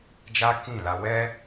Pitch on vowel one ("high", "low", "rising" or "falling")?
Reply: high